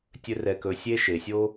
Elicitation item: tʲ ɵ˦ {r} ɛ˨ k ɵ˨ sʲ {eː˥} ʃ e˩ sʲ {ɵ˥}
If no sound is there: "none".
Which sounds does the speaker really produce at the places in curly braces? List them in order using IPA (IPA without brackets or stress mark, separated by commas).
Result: r, e˥, o˥